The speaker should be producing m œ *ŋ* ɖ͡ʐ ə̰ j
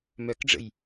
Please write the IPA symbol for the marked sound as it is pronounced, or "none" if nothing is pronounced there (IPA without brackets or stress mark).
k